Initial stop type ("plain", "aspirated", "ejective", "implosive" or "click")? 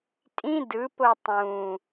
ejective